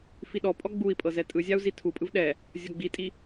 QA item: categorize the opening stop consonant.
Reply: implosive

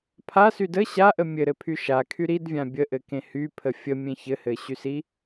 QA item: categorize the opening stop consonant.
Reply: aspirated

